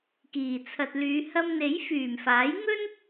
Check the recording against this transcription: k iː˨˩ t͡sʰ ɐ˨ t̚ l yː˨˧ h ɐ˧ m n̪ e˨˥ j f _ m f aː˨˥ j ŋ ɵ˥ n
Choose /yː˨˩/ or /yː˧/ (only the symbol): yː˨˩